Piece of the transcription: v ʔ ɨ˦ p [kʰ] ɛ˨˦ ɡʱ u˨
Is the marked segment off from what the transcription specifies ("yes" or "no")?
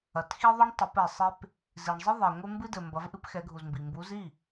yes